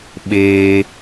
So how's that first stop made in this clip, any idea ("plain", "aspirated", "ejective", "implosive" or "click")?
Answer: implosive